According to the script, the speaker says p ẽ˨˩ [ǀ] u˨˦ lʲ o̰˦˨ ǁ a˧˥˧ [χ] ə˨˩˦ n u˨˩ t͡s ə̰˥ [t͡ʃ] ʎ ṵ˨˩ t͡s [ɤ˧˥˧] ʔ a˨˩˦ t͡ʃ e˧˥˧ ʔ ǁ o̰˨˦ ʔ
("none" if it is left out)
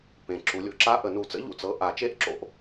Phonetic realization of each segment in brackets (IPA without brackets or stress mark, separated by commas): ǁ, ʔ, none, ɤ˧˥˧